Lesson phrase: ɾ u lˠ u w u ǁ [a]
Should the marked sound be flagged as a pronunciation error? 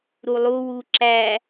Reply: yes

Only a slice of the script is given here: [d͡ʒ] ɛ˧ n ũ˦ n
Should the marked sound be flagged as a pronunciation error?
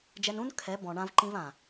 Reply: no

